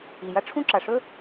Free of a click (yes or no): no